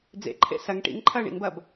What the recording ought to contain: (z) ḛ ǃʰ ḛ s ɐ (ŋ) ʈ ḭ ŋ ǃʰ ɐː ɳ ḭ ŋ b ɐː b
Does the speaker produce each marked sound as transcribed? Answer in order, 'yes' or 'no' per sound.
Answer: no, yes

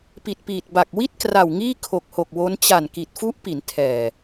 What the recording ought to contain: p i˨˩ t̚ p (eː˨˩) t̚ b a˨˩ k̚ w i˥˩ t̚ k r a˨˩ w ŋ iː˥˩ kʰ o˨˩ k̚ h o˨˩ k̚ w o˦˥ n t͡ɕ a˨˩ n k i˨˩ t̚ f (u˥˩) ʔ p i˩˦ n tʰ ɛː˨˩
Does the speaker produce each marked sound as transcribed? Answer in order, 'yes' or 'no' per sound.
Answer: no, no

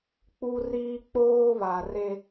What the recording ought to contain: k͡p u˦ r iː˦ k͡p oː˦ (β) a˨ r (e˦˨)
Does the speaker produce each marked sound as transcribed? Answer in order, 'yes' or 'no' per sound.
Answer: yes, no

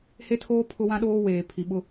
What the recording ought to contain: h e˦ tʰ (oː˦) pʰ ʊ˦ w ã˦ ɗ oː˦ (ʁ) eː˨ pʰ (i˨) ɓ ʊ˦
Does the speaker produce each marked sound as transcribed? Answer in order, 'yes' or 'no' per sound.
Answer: yes, no, yes

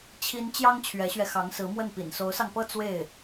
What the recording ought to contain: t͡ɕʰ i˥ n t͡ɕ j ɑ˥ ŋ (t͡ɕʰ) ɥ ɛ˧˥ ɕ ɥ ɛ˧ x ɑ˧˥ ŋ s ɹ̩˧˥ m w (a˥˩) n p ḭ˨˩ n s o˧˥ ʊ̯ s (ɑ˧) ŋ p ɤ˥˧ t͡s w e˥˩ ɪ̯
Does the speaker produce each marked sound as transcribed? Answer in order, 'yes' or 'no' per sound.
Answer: yes, no, yes

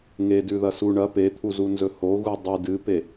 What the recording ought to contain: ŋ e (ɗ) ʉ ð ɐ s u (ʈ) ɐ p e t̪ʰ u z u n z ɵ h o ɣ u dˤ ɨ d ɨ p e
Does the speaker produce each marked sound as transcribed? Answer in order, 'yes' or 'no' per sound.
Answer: no, no

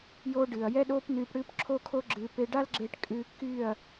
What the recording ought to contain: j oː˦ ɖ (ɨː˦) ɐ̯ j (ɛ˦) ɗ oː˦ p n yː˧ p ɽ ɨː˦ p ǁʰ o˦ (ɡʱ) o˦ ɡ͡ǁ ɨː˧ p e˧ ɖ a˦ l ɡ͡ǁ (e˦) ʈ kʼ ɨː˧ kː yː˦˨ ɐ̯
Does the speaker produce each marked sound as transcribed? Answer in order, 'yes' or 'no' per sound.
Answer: no, yes, no, no

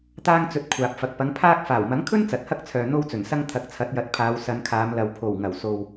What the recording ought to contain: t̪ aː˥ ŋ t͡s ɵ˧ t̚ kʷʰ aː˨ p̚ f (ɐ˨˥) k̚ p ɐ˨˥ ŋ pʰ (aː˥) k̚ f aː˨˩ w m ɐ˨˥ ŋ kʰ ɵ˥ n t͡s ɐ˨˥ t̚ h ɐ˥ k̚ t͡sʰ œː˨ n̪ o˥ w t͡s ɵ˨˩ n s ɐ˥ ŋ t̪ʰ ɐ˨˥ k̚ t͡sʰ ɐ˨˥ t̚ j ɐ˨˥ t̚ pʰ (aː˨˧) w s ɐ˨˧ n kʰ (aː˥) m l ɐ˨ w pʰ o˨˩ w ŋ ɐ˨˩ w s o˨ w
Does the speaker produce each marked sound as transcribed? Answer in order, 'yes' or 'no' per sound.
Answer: no, yes, yes, no

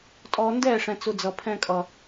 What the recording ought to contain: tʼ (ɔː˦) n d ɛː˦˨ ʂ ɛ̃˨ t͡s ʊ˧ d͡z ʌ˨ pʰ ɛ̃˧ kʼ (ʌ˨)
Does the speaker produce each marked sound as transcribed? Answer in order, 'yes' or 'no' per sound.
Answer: no, yes

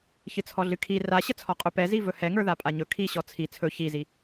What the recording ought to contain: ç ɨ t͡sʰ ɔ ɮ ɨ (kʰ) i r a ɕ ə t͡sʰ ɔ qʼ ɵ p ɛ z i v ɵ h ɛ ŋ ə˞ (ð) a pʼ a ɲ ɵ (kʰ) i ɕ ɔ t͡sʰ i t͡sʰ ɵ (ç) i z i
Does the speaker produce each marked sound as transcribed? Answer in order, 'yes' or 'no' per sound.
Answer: yes, yes, yes, yes

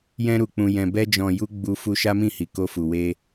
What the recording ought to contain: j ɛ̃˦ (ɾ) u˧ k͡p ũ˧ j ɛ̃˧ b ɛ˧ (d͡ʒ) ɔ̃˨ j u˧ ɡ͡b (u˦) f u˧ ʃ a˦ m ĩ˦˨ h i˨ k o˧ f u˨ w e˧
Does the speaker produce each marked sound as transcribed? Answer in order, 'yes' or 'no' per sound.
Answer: yes, yes, no

